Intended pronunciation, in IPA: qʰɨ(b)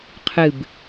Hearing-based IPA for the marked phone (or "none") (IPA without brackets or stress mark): b